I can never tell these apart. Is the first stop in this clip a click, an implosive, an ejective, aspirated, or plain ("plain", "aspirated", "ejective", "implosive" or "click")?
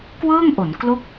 plain